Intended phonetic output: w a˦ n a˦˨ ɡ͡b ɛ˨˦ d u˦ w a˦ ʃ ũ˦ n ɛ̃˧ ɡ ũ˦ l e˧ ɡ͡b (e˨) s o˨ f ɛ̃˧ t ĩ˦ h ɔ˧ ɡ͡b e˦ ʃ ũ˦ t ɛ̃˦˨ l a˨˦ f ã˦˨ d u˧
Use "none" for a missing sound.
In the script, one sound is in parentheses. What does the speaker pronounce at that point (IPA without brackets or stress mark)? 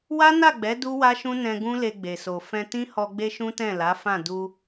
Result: e˨